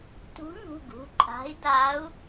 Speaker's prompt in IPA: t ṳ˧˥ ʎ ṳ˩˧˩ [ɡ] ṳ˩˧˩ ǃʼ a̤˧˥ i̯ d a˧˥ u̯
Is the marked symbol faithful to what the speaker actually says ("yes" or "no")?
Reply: yes